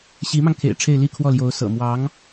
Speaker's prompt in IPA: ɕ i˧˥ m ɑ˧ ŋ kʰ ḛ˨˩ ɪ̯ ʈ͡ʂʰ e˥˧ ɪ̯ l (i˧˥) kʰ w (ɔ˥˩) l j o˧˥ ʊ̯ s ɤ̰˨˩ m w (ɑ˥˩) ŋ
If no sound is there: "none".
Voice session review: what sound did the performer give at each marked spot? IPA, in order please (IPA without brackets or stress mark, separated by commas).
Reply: i˥˧, ɔ˥˩, ɑ˧˥